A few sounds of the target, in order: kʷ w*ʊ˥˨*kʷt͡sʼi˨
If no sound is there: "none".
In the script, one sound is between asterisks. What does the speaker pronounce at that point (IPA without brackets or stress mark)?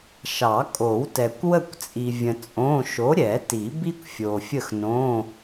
ə˥˨